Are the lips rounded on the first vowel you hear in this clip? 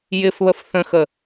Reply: no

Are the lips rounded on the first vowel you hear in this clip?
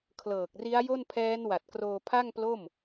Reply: no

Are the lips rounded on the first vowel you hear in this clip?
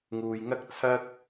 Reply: yes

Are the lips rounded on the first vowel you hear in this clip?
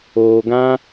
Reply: yes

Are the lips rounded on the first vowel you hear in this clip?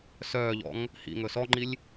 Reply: yes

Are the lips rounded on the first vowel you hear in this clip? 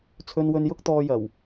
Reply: yes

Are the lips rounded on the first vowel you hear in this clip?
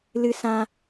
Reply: no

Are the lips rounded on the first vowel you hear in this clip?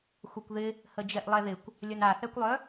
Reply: yes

